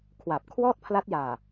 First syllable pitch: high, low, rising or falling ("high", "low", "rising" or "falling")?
low